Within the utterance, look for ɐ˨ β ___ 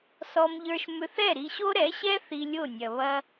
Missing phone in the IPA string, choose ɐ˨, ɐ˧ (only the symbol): ɐ˧